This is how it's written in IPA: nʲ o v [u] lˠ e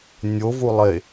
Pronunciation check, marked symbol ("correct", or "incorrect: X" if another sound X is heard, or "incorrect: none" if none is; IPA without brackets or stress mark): correct